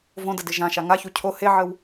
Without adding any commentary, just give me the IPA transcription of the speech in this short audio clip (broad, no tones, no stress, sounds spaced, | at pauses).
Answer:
v õ d ə d ɪ ʒ ã ʃ a ŋ a ç u cʰ o h e ʕ ə w